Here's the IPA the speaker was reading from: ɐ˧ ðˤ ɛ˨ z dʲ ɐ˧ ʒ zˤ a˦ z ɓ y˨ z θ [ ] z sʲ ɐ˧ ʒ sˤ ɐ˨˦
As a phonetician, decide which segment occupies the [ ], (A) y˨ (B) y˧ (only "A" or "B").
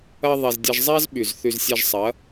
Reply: A